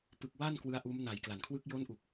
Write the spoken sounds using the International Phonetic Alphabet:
p ɯ˨˩ k̚ w a˥˩ n k w ɯ˦˥ a̯ ʔ uː˦˥ m n a˨˩ j k l a˩˦ n kʰ w ɯ˦˥ k̚ j oː˦˥ n ʔ u˨˩ k̚

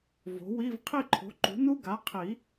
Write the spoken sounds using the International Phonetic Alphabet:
v o̤˩˥ w i˧˥˧ v qʰ i˦˨ ǃʰ o̤˩˥ ǃ ṳ˩˥ n u˦˥ ɡ a˩˥ qʰ i˨˩˦

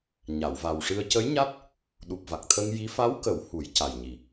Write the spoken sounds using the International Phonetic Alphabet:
ɲ a˨˩˨ w v a˨˩ w ʂ ɨ˧ ə̯ c ə˧˥ j ɲ a˦˥ t̚ | ɗ u˨˩ p̚ v a˨˩ k̚ t̪ʰ ə˧ ŋ j i˧˥ f a˧˥ w k ə˨˩˦ w h u˨˩˦ j c a˨˩ j ɲ i˨˩

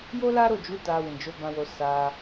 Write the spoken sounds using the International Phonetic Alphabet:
j o˦ l a˦ ɾ o˦˨ d͡ʒ u˨˦ t a˧ w ĩ˨ d͡ʒ o˨˦ b ã˧ w o˧ s a˧

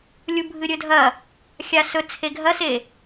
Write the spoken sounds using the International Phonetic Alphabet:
lʲ u bʱ ɨ ɾʲ ɵ dʱ ɐ | xʲ a s ɵ t͡sʰ e ɡʱ ɐ s e

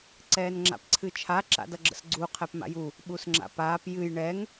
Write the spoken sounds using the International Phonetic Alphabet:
ǀ ɛː n ŋ͡ǁ a̰ p ǀʰ ɨ t͡ʃʰ a ǁ a̰ d ʌ ɡ͡ǁ ə̰ s ɡ͡ǀ u qʰ ɛ p m a̰ j u | ɓ u s ŋ͡ǁ a̰ p aː p j ɨ j ɳ ɛ ŋ

